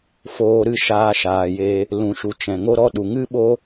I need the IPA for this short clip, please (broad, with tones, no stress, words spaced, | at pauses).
foː˧ɾɨ˦ʃaː˧ ʃaː˨je˧ | lũ˨ʃu˨ t͡ʃɛ̃˨ŋo˦ɾɔ˦ ɗu˨ŋɨ˦ɓo˦